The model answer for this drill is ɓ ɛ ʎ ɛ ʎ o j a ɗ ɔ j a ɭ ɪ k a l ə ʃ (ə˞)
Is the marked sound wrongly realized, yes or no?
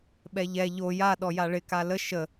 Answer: yes